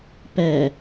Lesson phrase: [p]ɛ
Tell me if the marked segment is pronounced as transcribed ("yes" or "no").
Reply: yes